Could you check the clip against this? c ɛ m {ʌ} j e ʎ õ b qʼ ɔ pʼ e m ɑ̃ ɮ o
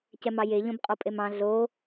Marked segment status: incorrect: ɑ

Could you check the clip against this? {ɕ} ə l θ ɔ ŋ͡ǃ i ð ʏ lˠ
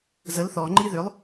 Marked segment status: incorrect: z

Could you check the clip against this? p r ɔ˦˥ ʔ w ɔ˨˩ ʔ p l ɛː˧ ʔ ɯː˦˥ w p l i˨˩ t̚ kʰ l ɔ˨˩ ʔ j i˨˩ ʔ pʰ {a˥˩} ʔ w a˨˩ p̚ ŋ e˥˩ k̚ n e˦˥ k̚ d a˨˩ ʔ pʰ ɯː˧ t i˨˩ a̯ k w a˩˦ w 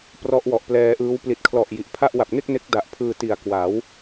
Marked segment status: correct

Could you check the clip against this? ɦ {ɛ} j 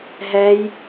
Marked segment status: correct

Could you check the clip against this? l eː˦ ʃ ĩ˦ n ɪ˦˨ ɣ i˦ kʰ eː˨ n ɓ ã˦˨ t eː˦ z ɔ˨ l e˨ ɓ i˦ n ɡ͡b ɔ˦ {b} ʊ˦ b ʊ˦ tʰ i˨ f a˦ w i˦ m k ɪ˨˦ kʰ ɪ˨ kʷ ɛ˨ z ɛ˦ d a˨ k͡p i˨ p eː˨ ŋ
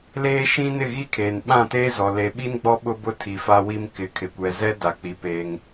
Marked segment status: incorrect: ɓ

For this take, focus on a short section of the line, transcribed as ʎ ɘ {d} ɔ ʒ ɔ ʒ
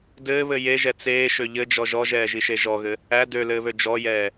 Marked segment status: incorrect: d͡ʒ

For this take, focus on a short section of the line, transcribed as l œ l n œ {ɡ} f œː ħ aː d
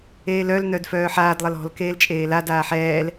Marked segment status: incorrect: d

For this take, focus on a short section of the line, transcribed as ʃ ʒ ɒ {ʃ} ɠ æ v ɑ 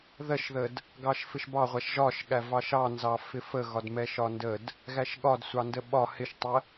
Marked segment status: correct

